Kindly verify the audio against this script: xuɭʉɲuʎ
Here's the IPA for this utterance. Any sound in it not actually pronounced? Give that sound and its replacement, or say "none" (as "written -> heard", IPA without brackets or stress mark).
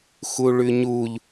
none